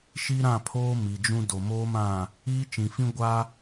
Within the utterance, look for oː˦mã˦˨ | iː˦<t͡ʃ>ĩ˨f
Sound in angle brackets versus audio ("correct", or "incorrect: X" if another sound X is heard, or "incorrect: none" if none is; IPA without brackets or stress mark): correct